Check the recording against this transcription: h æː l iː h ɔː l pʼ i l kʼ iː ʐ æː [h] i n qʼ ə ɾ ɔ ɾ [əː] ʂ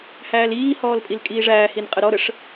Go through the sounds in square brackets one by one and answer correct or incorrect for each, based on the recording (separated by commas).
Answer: correct, incorrect